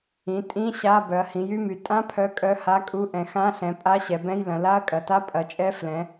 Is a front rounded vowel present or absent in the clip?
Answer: present